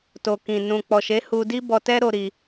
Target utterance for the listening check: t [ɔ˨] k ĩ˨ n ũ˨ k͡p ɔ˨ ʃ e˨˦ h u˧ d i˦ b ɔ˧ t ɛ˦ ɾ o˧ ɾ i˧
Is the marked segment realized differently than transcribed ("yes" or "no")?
yes